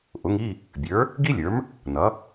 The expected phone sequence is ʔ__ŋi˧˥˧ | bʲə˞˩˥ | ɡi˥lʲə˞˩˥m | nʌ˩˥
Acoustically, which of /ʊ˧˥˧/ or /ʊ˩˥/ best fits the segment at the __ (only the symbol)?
ʊ˩˥